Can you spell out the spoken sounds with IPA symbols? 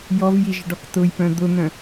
j ɔ v j i ʒ ə ɖ ɔ k t ʊ j p œ̃ d̪ ʊ n̪ œ̃

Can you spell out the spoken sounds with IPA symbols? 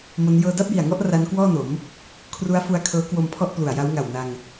m o˦˥ n j ɤː˥˩ d a˥˩ p̚ j i˨˩ a̯ ŋ ɔ˥˩ ʔ r a˦˥ n k w ɔː˥˩ n o˩˦ m | kʰ r u˦˥ a̯ f u˧ a̯ kʰ ɤː˦˥ k w o˧ m pʰ ɔ˥˩ ʔ p l u˨˩ a̯ j a˦˥ w ŋ a˨˩ w n a˧ ŋ

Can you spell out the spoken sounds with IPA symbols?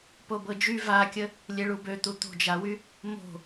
p o b ɤ d͡ʒ y v a kʲ ə | lʲ e ɭ u b ø t̪ u t̪ o̤ d͡ʒ a w y | m o̤

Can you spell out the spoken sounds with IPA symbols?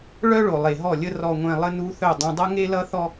ɭ œ˦ ɭ o˨ lˠ e˨ ɦ ɔ˦˨ lʲ ə˦ r ɔ˨ ŋʷ ẽ˨ lˠ ə˦ n u˦ θ œ˦˨ dˤ ũ˨ dˤ ʌ˦ ŋ e˦ l ʌ˦ θ ɔ˦

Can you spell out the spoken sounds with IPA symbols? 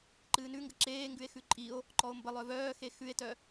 ǃ ɨː n ʉ ŋ ɡ ə ǁ eː ŋ ɡ ʉ e̯ x ʉ ǃʼ i o̯ | ǃ ɔ o̯ m b ə lˠ œ v œː x e x ʉ e̯ t œ

